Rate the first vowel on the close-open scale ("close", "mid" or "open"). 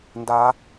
open